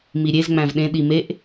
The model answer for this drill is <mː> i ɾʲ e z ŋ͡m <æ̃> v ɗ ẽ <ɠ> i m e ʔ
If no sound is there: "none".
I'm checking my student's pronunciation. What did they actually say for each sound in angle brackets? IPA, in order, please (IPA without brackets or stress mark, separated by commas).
m, æ̃, ɗ